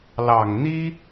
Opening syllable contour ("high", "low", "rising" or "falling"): low